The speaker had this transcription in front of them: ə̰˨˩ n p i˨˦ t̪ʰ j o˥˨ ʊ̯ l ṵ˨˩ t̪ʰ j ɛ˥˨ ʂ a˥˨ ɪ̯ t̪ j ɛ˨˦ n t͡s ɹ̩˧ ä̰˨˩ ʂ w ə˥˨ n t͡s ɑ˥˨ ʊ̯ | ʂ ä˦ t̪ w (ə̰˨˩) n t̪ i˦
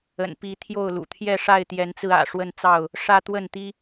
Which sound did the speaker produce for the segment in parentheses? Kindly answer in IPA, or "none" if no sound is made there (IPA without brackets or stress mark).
ə˥˨